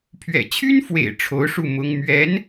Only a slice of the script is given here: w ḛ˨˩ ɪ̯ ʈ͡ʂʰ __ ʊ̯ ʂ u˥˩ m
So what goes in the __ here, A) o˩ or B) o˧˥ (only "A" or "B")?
B